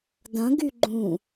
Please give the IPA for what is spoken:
d ɐ̃ ɡ y ɡ͡ǃ ũ

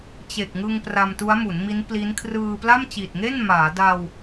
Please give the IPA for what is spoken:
t͡ɕ e˨˩ k̚ ŋ ɯ˧ ŋ p r a˧ m t u˦˥ a̯ m u˩˦ n m i˦˥ n p l i˦˥ n kʰ r ɯː˧ p l a˥˩ m t͡ɕ i˨˩ t̚ ŋ e˥˩ n m aː˩˦ d a˧ w

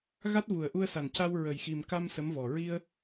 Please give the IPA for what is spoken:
ɣ a˦˥ t̚ v u˨˩ ə̯ ʔ u˧ ə̯ s a˨˩ n c a˧ w ɹ ə˨˩ j x i˨˩ m k a˧ m s ə˧˥ m v ɔ˨˩ ɹ i˧ ə̯

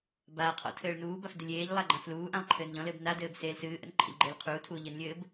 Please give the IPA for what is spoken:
b aː qʰ ɔ̰ tʰ ɘː ɭ n uː b a f d ɪ lʲ eː ʎ lˠ a ɡ͡ǃ ã f l uː ʔ ã lˠ ǃʰ ɘː n ʎ ɔ̃ l ɘː b n a d ɘː b s eː l s ɨː ʔ ə̰ n ǃʰ ə̰ ʎ ɡ͡ǃ ɘː l qʰ uː tʰ uː ʎ ɘ n lʲ ɘː b

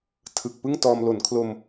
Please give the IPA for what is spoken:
tʰ ɯ˨˩ k̚ p ɯ˥˩ ŋ t ɔː˧ m l o˩˦ n kʰ l o˧ m

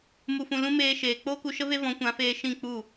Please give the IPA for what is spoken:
m u˨ f ũ˨ l ũ˧ m eː˧ ʃ eː˨ k͡p oː˦ k u˧ ʃ ə˦ v e˦ v ɔ̃˨˦ kʷ ã˨˦ f eː˧ ʃ ĩ˦˨ k͡p u˦˨

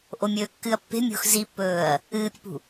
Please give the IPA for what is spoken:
ʔ o mʲ ɵː kː ɨ ɐ̯ pː e̤ mʲ o̤ x z i pː ɵː ɐ̯ | ɨː pʲ e̤ p ṳ

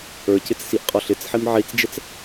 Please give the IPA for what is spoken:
ə˞ c ɪ t͡s s i ʔ qʼ ɔ ɬ ɪ t͡s ħ i m ʕ i t͡s d͡ʒ ɛ t͡s

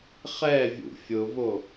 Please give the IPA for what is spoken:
χ ɛ vʲ ṵ fʲ ʊ v o

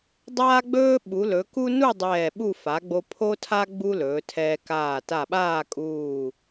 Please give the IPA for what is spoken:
dˤ aː˥ ɡ͡b ɵː˥ ɓ u˩˧ l ɵ˩˧ k u˥ n u˥˧ dˤ ɛː˧˩ ɓ u˥˧ f a˩˧ ɡ͡b o˧ pʰ o˥ tʰ a˥ ɡ͡b u˥ l ɵː˩˧ tʰ ɛː˧ k aː˧˩ t a˧˩ ɓ aː˥˧ kʼ uː˧˩

